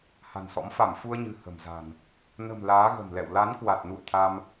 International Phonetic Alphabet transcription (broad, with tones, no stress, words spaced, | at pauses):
ha̤˨˩nsɔ̰˧˥m fa˧˩mfu˧ə̯ɲɨ̤˨˩ hə̤˨˩mza̤˨˩n | nə̤˨˩m laː˨˦ɣə̤˨˩mlɛ̰˧˨w la˨˦n kwa˨˩t̚nṵ˧˨ə̯t̪ʰa˧m